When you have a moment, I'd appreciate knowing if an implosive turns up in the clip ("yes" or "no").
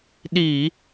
yes